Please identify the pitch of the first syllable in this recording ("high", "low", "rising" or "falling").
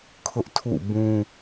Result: high